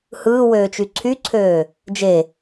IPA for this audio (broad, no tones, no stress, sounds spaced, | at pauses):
h ɯː w øː t͡ʃ y ǀʰ y ǀʰ øː | d͡ʒ e